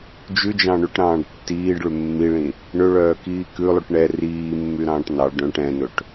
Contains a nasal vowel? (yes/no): yes